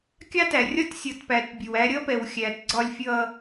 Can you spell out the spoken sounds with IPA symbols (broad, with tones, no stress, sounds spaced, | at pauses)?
kʲ ɑ˦ t æ˨ rʲ ɒ˦ t sʲ ʌ˨ t p æ˨ t bʲ ə˨ w æ˦ ɾʲ ʌ˦ p ɛ˨ w xʲ æ˨ t ɡ͡ǀ ɒ˦ lʲ fʲ ʌ˦